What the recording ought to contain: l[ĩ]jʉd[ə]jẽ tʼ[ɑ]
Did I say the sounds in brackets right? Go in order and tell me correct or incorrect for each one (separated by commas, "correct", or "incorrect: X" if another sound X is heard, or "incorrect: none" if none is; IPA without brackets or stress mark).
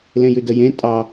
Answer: incorrect: ẽ, correct, correct